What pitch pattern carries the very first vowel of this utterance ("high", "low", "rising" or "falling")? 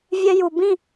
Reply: high